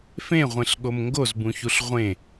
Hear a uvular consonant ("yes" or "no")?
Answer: yes